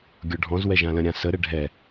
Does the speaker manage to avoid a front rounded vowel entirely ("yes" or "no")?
yes